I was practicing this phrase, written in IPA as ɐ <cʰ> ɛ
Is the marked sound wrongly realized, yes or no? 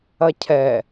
no